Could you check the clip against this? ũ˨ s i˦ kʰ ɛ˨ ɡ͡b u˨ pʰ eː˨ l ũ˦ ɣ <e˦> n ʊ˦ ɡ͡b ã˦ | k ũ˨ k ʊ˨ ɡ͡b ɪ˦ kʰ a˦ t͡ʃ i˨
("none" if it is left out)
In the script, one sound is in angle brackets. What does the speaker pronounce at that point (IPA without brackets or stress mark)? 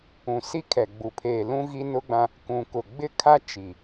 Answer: i˦